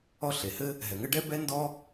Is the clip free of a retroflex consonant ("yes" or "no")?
no